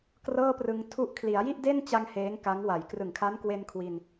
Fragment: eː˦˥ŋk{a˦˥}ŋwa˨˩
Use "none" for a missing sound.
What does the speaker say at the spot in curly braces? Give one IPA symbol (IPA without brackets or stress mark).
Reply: a˦˥